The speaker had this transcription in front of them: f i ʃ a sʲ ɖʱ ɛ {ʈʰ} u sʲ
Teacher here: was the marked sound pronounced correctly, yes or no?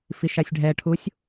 yes